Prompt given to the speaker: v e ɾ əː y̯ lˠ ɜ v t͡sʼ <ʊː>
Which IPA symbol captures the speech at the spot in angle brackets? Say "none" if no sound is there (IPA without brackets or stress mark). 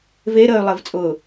ʊː